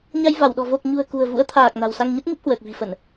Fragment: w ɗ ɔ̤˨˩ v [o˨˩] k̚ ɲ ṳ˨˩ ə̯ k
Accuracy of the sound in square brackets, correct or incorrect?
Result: correct